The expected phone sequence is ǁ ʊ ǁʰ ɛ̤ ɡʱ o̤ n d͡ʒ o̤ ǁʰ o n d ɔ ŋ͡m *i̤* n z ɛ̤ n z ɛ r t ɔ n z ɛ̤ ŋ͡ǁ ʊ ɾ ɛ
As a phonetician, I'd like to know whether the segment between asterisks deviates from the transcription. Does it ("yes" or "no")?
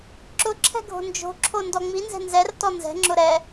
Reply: yes